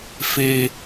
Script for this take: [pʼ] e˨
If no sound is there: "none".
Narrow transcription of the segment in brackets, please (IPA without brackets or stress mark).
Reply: f